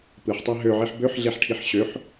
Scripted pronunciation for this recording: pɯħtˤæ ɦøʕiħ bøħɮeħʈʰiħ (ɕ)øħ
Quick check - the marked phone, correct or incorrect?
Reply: correct